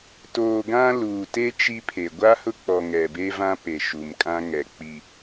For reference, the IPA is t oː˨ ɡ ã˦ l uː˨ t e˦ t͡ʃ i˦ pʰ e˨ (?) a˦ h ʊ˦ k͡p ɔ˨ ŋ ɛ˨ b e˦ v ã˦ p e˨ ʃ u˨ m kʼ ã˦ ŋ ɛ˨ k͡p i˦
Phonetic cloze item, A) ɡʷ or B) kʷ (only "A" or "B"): A